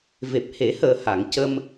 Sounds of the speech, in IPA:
v e˨˩ p̚ h e˨˩˦ h əː˨˩ h a˨˩˨ ŋ c ə˧ m

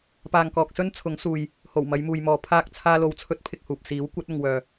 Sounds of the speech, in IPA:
p aː˨ ŋ k ɔː˨ k̚ s ɵ˥ n t͡sʰ ʊ˨˥ ŋ s uː˨ j | h o˨˩ w m ɐ˨˧ j m uː˨ j m ɔː˨ pʰ aː˧ k̚ t͡sʰ aː˥ l o˧ w t͡sʰ ɵ˥ t̚ pʰ ɪ˧ k̚ h uː˨ p̚ s iː˨˥ w kʷ ɐ˨˥ t̚ ʊ˨ ŋ w œː˨

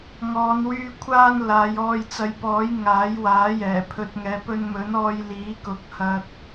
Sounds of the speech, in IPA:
ŋ ɔː˨˧ n w yː˧ kʷʰ aː˥ n l aː˨˧ j ɔː˧ j t͡s ɐ˨˧ j p ɔː˨˥ j ŋ aː˨˥ j w aː˨˥ j ɛː˨˩ pʰ ɵ˧ t̚ ŋ ɛː˨ p ɵ˧ n m ɵ˨˥ n ɔː˧ j l iː˨˥ k ʊ˨˥ k̚ h ɐ˧ t̚

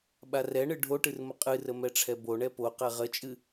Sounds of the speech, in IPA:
ɓ a r ɛ ɳ ɨ ɖʱ o ʈ ɨ r m ə qʼ ɨ r ə m ɛ ʈ͡ʂʰ ɛ b o ɳ ɛ p o q ɛ ʁ ə t͡ʃʼ ɨ

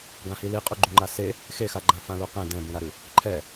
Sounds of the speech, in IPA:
ɡ ã h i l i qʼ u ɡ͡ǃ u ŋ͡ǃ a s e | x e x a ɡ͡ǃ ã f ã l u q ẽ d ɛ̃ b ũ ɾ a ɾ ʉ | ǃʰ ɛ

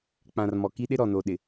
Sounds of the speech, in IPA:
k͡p ã˨ r m ɔ˨ k i˦ ɗ ɪ˦ ɾ ɔ˨ n oː˨ ɗ ɪ˨

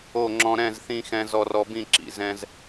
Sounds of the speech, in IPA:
o˦˨ ŋ͡ǁ ɔ̃˧ ɾ ɛ̃˦˨ z θ ĩ˧ x ɛ̃˦ z ɔ˧ r ɔ˧ b ĩ˦˨ ǁ ḭ˨ z ɛ̃˧ z

